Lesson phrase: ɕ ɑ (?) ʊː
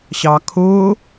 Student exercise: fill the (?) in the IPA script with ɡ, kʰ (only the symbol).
kʰ